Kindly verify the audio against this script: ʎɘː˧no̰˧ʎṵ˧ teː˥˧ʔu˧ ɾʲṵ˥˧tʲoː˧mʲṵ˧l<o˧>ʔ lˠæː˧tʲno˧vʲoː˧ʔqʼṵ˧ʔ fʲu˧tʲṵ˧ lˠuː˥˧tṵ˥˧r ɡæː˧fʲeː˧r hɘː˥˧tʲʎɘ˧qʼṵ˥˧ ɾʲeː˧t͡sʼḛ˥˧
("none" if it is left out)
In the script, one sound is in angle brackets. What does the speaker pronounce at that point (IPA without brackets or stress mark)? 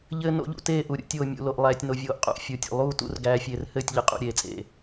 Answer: o˧